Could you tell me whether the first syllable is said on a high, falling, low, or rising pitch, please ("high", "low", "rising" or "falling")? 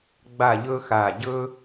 falling